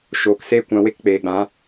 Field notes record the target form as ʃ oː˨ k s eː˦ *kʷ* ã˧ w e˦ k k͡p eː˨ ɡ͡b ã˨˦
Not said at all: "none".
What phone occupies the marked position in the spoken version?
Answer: kʷ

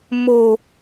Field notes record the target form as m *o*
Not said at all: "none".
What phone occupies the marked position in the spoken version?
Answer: o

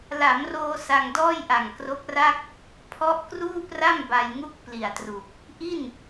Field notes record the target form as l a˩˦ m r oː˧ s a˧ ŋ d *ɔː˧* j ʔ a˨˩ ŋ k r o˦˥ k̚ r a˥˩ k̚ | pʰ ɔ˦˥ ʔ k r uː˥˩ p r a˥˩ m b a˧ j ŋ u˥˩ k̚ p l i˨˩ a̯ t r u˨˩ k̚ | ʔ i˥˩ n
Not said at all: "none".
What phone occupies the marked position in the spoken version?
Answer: ɔː˥˩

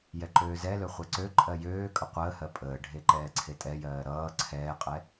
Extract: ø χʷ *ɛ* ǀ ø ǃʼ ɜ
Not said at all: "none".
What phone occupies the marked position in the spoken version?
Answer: ɛ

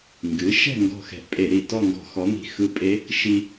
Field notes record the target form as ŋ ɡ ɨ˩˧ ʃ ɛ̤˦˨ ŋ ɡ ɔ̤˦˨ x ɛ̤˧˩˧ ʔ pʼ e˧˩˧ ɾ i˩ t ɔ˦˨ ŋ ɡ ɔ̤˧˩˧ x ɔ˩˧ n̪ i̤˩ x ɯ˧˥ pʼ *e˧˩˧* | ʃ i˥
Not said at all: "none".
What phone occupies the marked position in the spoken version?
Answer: e˧˥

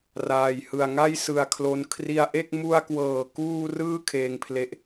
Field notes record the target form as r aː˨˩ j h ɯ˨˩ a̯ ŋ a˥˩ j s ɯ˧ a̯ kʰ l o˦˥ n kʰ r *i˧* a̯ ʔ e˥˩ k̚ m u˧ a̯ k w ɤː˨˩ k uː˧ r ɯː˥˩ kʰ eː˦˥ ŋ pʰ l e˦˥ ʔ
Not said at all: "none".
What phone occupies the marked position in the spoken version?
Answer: i˧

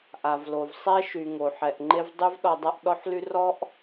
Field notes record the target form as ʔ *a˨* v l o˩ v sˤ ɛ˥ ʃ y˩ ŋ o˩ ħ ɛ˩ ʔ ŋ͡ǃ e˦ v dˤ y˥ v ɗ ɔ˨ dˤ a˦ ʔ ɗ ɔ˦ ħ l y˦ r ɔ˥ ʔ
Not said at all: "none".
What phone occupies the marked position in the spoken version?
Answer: a˩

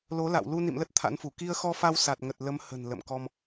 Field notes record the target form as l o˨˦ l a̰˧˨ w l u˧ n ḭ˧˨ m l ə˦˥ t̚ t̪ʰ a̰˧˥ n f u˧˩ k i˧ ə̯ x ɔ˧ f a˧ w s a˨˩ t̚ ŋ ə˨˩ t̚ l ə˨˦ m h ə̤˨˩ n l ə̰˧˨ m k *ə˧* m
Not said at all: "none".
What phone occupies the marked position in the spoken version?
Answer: ɔ˧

